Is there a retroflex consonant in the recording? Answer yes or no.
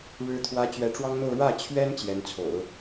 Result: yes